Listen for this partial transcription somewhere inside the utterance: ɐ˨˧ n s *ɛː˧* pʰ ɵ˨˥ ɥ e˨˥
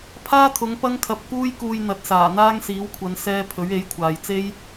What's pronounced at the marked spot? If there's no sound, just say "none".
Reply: ɛː˧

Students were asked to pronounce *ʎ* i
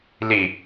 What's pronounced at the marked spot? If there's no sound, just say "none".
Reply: l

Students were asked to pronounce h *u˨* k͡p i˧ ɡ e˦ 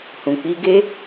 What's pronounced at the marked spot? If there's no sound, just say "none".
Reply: ũ˨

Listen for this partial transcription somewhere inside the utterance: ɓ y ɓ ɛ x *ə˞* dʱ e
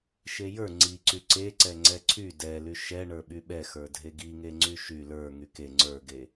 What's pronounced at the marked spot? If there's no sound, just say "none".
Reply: ə˞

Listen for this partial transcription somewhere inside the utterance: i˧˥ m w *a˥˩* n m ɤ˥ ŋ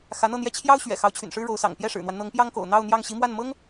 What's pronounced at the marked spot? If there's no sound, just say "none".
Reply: a˥˩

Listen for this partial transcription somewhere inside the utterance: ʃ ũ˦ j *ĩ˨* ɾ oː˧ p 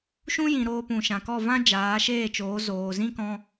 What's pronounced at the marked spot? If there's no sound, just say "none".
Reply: ĩ˨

